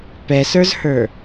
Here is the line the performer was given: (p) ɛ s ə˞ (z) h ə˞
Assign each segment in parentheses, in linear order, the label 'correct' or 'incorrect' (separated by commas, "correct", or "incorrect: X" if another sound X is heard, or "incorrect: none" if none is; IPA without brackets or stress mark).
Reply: correct, correct